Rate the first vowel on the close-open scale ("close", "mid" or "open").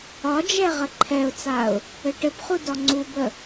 open